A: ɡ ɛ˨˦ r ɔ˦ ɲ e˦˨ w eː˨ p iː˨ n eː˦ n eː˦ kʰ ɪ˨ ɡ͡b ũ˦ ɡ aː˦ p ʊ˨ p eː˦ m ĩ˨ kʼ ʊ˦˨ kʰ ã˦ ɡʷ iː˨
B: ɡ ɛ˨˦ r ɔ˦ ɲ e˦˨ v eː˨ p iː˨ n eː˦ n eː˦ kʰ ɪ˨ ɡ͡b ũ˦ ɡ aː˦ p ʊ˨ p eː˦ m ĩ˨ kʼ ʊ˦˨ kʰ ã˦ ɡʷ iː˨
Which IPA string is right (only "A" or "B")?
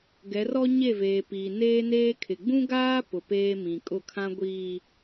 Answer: B